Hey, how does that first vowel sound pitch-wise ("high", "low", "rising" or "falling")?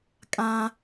high